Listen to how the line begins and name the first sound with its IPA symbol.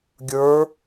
ɡʲ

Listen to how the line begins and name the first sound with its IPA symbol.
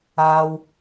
aː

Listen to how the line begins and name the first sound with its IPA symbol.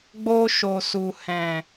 ɡ͡b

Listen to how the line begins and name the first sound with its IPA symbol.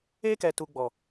e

